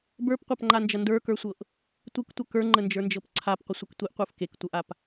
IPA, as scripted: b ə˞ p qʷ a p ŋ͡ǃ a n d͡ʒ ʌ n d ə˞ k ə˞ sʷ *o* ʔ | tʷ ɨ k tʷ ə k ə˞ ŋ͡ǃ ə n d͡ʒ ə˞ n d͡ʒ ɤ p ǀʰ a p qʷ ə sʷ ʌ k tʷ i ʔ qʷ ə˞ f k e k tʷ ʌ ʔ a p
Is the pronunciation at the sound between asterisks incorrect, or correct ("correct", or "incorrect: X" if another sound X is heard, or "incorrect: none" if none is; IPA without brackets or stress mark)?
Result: incorrect: ɤ